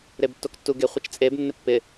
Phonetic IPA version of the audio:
ɾ e b tː o k tː u ɡ e χʷ ɪ t͡ʃ t͡sʼ e b nː ɪ pː ɪ

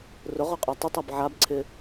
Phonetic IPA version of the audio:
r ʊ ʁ ɔ qʼ a tˤ ʊ tˤ a b ʕ a b ǀʰ ɪ

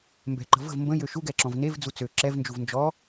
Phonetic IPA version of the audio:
m b ɛ̤ ǃ ə̤ v ə̤ v m b ə̃ j ø ʃ u ɡ ɛ ǁ ɔ̃ v n e v d͡z u t͡s ø ǁ ɛ v n d͡ʒ u v n d͡ʒ ɔ

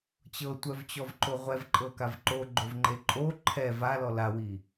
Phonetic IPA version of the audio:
t͡ɕ ɤ tʷ œ v t͡ɕ ɔ v ǃ o ʁʷ ɛ v ǃʼ ɤ k a v ǃ o ɡ͡ǃ o v ŋ͡ǃ e ǃʼ o ǃʰ ɛ v a l ɔ l a w i

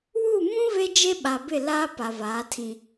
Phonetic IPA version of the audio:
w u˦˨ m ũ˦ v e˦ d͡ʒ e˦ ɓ a˨ b ɪ˦˨ l aː˦ p a˨ v aː˨˦ tʰ ĩ˨

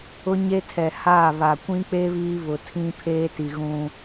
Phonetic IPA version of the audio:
ʊ˦ ɲ e˦ tʰ ɛ˨ h aː˦˨ β a˨ kʷ ĩ˦ k͡p e˦ β iː˦ β ʊ˨ tʰ ĩ˦ pʰ eː˦ t i˨ ɣ ũ˦

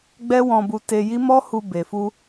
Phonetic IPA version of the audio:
ɡ͡b ɛ˦ w ɔ̃˧ b u˧ t e˧ j i˦ m ɔ˦ h u˧ b e˨ f u˧

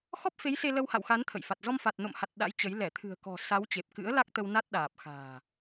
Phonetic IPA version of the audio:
x ɔ˦˥ p̚ f e˨˦ j s e˧ l ə˧ w h a̰˧˨ w x a˨˦ n t̪ʰ ə̰˧˨ j f a˨˩ t̚ z ɔ˧ m f a˨˩ t̚ n o̰˧˨ m h a˨˩ t̚ ɗ a̰˧˥ j t͡ɕ ə˨˦ j l ɛ˧˩ t̪ʰ ɨ̤˨˩ ə̯ k ɔ̤˨˩ s a˨˦ w t͡ɕ e˨˩ p̚ k ɨ̰˧˥ ə̯ l a˦˥ k̚ t̪ ə˧ w n a˦˥ t̚ ɗ aː˨˩ p̚ x a̤ː˨˩

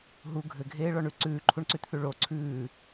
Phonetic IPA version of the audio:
ɦ u ɡʱ ɘ ɡʱ eː ɭ ɔ ɳ ʉ ǀ ʉː ǃʰ u ɳ ǀ ʉ t θ ʉ ɭ o ǀʰ ʉː

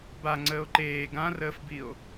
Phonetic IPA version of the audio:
b a ŋ͡ǀ əː o̯ ǃ eː ɡ ã r əː f b i o̯

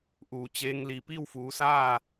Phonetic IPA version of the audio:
ʔ uː˩ t͡ɕ eː˧˥ ŋ l i˧˩ p i˥˨ w f uː˩˧ s aː˥˨

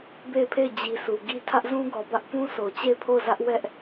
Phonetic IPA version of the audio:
b e˦˨ ɪ̯ pʰ e˦˨ ɪ̯ d͡ʑ i˨ s u˨ ɡ i˦ tʰ ä˦ ʔ z ũ˦ ɡ ɔ˨ b ä˦ ʔ p ũ˦ s o˨ t͡ɕ e˦˨ ɪ̯ pʰ o˦˨ ʊ̯ z ä˦ ʔ w ɛ˦ ʔ

